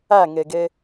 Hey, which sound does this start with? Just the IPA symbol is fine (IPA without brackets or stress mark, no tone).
æ